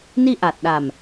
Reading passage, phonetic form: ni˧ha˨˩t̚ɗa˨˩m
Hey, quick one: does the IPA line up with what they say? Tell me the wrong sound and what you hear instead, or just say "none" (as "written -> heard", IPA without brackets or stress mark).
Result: h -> ʔ